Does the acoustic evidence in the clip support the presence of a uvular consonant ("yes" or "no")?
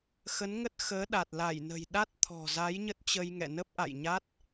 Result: no